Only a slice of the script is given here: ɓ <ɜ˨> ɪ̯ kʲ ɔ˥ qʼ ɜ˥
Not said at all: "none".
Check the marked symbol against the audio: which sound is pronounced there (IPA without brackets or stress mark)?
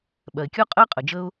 ɜ˩